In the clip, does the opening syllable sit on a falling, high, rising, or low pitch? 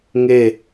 falling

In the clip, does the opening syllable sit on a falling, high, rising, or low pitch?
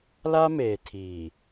high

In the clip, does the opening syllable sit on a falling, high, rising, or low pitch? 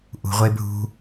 low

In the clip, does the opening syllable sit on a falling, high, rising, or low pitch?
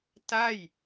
falling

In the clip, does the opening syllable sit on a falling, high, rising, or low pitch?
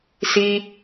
high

